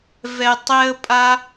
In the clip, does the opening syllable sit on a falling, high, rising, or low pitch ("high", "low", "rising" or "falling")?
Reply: low